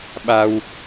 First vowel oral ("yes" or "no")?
yes